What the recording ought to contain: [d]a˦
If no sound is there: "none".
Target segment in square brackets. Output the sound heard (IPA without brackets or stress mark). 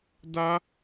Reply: d